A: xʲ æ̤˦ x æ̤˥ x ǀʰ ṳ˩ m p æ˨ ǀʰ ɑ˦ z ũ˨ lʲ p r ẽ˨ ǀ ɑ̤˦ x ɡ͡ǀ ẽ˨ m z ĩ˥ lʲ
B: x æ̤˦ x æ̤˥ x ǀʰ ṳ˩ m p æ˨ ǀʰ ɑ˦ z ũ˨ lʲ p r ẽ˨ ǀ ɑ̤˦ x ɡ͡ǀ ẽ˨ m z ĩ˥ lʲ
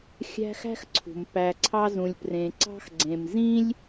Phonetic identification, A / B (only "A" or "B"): A